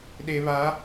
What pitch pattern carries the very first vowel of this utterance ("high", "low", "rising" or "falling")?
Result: low